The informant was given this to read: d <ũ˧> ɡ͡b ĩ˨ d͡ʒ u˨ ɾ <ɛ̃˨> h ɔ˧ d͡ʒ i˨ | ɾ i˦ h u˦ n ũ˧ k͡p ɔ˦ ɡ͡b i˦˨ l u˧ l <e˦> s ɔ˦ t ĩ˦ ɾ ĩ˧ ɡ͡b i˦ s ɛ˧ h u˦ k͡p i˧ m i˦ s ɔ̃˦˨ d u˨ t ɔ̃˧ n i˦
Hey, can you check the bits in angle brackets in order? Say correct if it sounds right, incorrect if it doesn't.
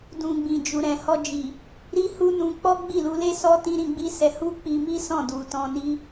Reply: incorrect: ũ˨, correct, correct

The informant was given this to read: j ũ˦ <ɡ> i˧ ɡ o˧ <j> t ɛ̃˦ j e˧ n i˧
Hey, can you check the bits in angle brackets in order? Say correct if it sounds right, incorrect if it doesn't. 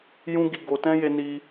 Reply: correct, incorrect: none

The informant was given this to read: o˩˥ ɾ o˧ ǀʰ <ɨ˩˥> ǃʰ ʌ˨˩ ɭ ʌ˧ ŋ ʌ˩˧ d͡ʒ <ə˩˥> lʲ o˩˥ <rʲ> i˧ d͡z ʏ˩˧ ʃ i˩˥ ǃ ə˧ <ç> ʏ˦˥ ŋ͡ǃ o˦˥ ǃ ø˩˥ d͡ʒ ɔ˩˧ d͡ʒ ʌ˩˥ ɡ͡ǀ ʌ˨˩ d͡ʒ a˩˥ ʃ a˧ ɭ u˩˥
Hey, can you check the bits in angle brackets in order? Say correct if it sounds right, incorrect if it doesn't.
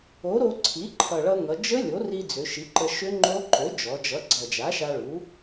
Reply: incorrect: i˩˥, incorrect: ə˦˥, incorrect: r, incorrect: ʃ

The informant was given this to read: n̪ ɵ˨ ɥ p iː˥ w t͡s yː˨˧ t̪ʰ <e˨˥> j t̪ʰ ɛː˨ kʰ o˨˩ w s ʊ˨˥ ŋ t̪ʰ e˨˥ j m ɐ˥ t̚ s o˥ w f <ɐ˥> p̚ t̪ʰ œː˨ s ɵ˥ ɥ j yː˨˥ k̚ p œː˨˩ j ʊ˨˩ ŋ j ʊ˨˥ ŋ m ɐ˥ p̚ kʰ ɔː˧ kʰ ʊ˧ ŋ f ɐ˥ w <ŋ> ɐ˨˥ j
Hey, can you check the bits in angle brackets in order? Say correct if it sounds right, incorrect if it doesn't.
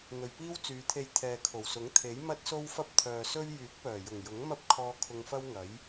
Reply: incorrect: e˧, correct, correct

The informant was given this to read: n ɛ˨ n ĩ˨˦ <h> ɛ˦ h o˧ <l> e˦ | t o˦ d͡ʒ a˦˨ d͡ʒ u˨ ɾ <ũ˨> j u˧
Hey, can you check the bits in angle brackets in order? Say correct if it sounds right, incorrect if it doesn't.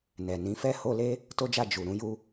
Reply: incorrect: f, correct, incorrect: ũ˨˦

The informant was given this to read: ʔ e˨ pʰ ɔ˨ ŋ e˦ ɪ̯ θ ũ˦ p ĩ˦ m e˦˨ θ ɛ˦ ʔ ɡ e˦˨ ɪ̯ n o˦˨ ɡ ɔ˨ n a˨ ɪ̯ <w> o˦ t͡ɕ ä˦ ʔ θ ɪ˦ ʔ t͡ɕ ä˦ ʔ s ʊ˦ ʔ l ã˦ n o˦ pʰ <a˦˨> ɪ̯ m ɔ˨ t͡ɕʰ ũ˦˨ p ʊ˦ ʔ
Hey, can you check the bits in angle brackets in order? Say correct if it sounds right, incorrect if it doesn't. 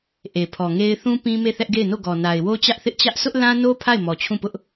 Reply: correct, correct

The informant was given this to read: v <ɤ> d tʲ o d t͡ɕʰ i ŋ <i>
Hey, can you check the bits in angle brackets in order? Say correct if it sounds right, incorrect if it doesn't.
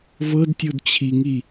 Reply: correct, correct

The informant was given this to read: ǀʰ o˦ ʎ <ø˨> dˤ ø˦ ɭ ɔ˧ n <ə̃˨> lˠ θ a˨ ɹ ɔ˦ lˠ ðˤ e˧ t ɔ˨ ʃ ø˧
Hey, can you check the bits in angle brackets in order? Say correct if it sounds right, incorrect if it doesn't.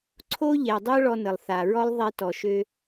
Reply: incorrect: ɛ˨, incorrect: ə˨

